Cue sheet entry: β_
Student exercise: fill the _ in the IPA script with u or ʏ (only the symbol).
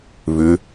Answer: ʏ